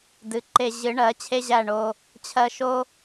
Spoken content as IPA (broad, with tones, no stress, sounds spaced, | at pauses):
d ɨ˨ ǃ e˧ ʑ ɨ˨˦ ɳ ɜ˨˦ t͡ɕʰ e˦ ʑ æ˦˨ ɳ o˧ | t͡ɕʰ ɜ˧ ʃ o˦